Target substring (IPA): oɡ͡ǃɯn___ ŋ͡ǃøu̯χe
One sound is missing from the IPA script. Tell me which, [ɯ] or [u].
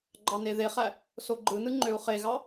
ɯ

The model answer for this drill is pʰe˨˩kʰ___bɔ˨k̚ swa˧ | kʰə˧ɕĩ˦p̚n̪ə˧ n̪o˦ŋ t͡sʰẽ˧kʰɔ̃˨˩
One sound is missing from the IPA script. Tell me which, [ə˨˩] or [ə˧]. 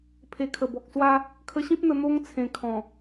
ə˨˩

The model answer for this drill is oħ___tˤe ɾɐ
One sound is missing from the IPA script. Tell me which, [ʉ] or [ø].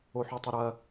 ʉ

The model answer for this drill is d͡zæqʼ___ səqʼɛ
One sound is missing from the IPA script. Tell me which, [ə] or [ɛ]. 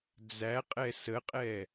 ɛ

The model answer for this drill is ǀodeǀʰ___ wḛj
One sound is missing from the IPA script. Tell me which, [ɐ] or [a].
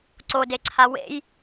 a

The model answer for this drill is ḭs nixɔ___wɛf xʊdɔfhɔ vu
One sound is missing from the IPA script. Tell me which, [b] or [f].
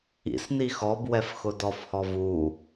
b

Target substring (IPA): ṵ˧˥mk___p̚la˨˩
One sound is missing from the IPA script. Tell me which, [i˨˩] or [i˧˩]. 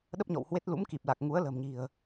i˨˩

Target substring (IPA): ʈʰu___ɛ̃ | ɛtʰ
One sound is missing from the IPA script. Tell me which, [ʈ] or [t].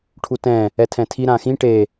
t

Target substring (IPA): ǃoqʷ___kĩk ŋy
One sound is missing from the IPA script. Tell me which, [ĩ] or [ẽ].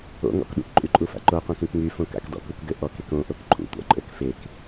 ẽ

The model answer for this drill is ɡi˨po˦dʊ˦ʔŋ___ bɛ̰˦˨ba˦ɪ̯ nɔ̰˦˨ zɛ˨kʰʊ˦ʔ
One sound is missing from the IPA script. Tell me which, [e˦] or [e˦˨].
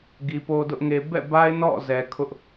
e˦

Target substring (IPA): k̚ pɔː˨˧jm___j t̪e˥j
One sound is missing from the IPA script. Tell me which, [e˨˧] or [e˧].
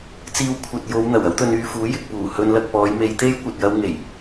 e˨˧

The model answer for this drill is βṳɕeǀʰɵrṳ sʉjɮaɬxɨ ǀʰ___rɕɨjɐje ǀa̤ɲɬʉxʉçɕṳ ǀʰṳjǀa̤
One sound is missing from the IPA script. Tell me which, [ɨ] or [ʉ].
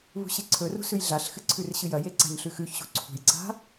ʉ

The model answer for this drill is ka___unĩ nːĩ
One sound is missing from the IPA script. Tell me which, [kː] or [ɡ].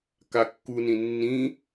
kː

